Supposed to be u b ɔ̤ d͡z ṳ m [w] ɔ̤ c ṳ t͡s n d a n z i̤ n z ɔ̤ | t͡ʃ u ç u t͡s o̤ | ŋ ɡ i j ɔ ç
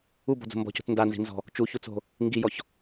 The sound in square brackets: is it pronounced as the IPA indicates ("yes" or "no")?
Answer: no